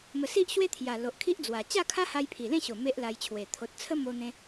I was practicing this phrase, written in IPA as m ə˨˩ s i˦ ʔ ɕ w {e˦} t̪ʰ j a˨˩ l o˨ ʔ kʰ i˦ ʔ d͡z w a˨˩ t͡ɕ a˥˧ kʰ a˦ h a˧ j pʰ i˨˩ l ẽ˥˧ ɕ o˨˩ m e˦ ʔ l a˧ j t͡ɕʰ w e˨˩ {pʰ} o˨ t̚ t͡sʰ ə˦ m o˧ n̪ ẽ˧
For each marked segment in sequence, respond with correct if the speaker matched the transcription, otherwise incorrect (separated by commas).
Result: correct, incorrect